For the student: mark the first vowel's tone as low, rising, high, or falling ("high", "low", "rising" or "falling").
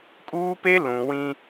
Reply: high